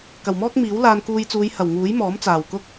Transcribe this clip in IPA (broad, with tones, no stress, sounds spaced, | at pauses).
k ɐ˨˩ w m ɔː˥ k̚ m iː˨˥ w l aː˧ n k uː˧ j t͡s uː˨˧ j h ɐ˨˩ w ŋ uː˨˥ j m ɔː˨˥ m t͡s aː˨˩ w k ʊ˥ k̚